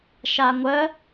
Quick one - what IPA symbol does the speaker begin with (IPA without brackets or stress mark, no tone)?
ʃ